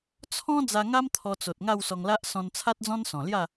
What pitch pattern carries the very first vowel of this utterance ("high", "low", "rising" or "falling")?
high